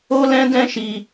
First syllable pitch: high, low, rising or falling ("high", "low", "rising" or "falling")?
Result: high